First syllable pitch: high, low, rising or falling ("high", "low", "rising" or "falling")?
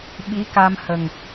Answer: rising